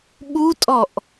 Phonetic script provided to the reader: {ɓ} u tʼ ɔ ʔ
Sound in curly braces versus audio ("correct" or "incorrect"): correct